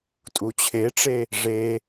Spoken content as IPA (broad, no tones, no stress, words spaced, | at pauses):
tʼut͡ɕʰeʈ͡ʂe | ʐe